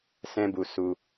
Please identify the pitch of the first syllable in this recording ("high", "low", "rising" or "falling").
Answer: high